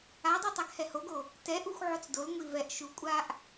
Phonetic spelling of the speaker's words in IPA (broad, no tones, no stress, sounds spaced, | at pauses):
a dˤ u tˤ a ɡ h ɛ h o ɡ o | t ɛ ʔ u xʷ ʕ o t͡s d o l ŋʷ i v ɛ ʔ ʃ u kʷʼ a ʔ